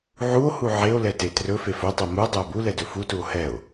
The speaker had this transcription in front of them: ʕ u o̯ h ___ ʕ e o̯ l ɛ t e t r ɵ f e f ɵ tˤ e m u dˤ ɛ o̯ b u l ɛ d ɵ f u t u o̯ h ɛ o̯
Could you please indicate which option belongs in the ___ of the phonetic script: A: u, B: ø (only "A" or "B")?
A